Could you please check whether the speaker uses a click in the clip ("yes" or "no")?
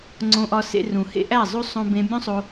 yes